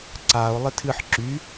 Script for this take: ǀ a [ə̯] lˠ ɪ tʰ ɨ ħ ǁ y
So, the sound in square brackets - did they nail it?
no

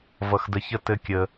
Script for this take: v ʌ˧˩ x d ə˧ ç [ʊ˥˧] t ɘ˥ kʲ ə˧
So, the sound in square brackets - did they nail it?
no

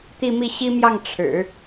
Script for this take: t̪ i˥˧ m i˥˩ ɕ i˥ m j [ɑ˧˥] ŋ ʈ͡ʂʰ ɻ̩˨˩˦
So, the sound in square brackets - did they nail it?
no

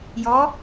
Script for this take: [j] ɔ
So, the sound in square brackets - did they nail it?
yes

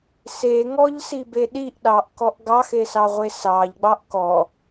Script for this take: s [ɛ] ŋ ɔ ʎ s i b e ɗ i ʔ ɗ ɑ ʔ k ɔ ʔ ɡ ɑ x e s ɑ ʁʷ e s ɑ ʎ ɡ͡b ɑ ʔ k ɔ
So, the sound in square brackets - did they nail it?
no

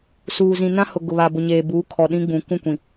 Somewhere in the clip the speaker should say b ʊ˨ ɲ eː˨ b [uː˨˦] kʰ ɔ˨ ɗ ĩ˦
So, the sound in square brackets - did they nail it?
yes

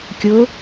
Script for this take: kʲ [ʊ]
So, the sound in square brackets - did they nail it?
yes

